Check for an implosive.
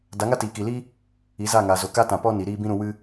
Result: absent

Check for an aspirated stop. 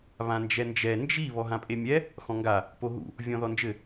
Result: absent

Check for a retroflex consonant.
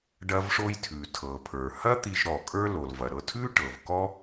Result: present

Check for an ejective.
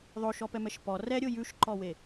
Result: absent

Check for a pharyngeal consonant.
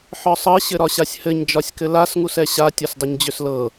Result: present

